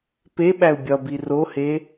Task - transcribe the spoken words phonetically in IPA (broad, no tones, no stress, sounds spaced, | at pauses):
p e ɓ æ u̯ bʲ ɒ b i r o h e